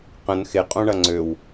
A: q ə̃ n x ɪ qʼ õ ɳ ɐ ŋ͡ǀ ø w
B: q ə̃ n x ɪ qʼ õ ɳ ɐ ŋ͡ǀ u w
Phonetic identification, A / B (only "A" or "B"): A